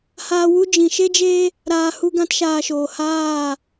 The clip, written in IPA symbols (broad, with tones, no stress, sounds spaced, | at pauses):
h aː˧ w u˦ d͡ʒ ĩ˨ ʃ e˦ d͡ʒ e˦ | ɾ aː˨ h u˧ ɡ ã˧ t ʃ aː˨ ʃ oː˨ h aː˦˨